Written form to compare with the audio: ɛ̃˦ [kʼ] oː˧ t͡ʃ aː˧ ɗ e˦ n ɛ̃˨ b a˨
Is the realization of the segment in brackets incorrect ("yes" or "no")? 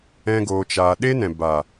yes